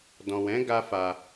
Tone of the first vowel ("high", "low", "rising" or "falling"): low